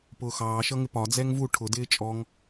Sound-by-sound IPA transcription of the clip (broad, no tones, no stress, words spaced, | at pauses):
pʊːxɑːʃʌŋɪ pɒd͡zɛŋ vu ʈʰʊ dɪːt͡ʃʼɔŋ